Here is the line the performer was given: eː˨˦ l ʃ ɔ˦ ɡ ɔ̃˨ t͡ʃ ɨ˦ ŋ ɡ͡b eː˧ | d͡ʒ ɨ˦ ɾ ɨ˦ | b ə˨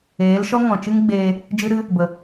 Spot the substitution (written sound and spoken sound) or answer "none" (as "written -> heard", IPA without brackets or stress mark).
ɡ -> ŋ